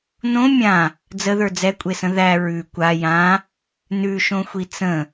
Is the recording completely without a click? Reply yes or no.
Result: yes